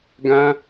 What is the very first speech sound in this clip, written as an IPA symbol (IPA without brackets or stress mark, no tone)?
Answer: ɡ